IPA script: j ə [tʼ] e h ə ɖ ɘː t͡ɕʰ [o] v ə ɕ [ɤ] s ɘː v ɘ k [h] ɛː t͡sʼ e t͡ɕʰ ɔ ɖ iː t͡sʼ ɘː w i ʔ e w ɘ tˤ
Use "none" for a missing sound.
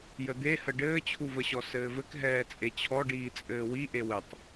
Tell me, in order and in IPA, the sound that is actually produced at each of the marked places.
d̪, u, ɔ, ɦ

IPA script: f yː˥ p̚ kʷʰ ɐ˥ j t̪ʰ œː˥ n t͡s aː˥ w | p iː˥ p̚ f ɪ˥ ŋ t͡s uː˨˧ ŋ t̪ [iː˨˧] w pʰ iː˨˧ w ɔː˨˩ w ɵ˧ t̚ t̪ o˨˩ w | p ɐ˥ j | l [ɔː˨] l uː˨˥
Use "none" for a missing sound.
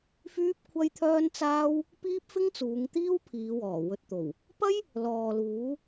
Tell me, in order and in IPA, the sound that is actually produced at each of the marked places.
iː˥, ɔː˨

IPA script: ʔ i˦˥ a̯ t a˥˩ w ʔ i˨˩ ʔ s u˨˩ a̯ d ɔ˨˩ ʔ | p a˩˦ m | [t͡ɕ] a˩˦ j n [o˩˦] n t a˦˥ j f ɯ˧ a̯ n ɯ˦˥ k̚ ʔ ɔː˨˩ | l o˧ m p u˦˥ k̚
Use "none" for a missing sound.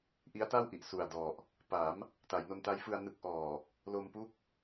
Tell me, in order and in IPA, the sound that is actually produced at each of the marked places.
t, o˧

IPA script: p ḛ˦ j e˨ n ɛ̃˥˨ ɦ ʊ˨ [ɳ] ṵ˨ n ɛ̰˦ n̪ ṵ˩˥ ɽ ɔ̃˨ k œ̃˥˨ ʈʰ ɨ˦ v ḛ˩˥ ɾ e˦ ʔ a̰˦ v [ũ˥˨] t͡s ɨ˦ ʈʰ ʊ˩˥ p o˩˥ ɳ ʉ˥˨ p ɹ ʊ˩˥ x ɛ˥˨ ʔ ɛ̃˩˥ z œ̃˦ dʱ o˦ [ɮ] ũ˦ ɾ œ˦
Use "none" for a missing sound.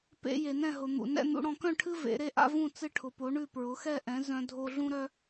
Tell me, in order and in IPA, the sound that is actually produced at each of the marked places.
n̪, ũ˥˨, ɮ

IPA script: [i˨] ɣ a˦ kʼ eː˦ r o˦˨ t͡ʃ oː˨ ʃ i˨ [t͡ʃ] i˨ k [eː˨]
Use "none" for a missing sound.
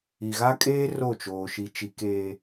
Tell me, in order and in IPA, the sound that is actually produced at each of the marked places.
i˨, t͡ʃ, eː˨

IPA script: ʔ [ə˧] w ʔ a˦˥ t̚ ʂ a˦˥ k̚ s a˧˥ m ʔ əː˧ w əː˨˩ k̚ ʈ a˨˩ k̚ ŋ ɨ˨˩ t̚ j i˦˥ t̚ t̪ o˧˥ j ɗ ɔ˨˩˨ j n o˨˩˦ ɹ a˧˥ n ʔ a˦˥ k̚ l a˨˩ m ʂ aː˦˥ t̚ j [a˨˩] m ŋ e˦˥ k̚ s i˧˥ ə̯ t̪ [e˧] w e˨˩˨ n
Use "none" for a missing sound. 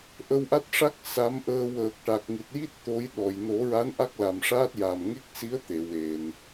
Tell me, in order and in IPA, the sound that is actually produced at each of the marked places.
ə˧, a˨˩, e˨˩˨

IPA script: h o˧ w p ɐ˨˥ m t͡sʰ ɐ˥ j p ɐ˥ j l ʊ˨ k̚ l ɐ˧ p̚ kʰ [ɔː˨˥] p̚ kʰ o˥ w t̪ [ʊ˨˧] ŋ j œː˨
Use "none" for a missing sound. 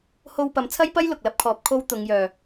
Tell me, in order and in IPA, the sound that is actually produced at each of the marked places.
ɔː˨˥, ʊ˨˧

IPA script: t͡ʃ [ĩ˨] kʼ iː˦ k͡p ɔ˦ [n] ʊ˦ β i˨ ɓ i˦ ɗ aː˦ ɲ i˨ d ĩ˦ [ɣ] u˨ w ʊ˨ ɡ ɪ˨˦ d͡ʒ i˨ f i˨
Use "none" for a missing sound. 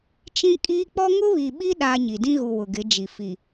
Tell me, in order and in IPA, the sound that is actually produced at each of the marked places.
ĩ˦, ŋ, ɣ

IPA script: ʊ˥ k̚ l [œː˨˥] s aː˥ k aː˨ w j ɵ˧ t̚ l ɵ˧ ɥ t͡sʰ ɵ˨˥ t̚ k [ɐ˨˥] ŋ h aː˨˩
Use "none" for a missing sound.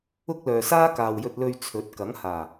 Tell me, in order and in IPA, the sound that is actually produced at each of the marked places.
œː˨, ɐ˨˥

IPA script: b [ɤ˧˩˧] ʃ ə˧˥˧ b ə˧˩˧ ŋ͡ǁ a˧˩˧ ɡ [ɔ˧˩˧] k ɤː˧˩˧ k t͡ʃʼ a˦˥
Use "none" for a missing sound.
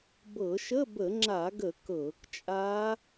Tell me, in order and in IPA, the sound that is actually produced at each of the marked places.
ɤ˧˩˧, ə˧˩˧

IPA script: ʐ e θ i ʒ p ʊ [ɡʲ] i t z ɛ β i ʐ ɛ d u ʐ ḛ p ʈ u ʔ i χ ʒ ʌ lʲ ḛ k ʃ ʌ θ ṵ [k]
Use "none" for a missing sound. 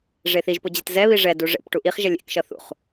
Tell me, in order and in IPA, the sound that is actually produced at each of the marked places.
d͡ʑ, χ

